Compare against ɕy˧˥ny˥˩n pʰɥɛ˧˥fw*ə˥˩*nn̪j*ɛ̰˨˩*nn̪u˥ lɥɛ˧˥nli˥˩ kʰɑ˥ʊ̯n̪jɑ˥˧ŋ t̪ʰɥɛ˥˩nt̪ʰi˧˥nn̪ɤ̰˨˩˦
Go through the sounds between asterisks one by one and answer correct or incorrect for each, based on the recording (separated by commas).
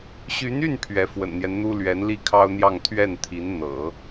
incorrect, incorrect